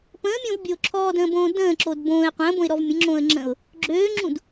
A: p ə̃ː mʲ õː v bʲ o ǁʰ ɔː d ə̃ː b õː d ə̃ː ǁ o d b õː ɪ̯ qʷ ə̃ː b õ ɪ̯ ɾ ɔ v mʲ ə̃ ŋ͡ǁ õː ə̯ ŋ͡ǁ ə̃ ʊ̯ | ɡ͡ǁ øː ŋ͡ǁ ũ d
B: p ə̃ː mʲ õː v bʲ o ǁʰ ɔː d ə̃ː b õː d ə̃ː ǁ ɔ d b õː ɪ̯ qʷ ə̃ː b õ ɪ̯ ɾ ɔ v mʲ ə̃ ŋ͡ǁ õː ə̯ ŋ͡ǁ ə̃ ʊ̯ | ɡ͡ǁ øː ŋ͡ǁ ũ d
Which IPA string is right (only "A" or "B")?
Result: A